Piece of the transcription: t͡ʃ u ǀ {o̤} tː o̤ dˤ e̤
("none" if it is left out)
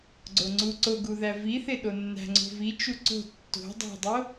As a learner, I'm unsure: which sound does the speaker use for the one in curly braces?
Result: o̤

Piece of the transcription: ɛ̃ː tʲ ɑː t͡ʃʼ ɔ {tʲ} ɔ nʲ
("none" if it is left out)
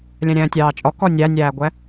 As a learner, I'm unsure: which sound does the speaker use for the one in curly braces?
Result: k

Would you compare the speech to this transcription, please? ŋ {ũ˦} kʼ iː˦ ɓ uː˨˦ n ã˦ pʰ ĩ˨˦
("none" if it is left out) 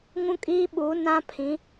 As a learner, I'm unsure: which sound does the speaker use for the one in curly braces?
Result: ũ˦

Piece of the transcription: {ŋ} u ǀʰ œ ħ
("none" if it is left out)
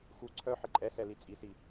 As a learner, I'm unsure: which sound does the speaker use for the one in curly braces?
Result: x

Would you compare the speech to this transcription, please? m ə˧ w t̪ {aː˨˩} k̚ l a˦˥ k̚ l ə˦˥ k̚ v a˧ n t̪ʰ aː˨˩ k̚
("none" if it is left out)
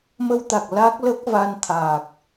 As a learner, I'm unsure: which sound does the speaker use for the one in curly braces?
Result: a˨˩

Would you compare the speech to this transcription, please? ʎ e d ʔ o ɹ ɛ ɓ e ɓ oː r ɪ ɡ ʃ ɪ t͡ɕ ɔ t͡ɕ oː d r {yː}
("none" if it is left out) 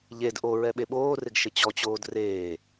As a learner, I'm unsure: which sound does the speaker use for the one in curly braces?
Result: eː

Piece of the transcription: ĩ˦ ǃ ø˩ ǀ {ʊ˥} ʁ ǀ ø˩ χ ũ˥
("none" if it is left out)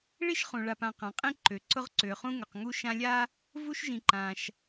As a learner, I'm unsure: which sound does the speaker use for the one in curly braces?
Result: ʊ˥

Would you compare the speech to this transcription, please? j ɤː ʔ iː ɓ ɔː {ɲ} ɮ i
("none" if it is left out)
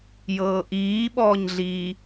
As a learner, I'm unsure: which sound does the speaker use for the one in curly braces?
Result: ɲ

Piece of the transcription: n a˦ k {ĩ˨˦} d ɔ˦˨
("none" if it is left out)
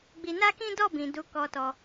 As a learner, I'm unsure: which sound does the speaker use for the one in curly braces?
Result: ĩ˦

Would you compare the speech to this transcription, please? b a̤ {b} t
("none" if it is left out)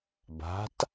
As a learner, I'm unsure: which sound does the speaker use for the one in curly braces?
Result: none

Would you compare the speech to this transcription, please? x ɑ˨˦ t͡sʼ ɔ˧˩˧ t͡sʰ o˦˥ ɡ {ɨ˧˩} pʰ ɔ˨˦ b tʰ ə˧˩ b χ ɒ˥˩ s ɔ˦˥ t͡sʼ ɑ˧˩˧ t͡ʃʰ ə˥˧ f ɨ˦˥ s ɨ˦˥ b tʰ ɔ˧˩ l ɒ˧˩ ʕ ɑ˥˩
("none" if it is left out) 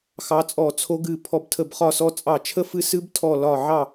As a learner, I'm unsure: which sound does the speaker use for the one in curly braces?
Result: ɨ˧˩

